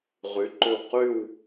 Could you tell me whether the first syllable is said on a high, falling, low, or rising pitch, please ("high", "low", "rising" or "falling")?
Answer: rising